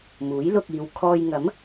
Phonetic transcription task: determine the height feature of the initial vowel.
high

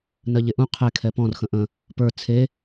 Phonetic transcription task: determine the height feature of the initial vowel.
mid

